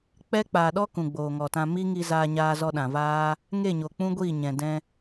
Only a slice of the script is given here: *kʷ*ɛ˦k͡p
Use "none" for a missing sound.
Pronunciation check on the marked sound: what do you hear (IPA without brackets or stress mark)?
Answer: k͡p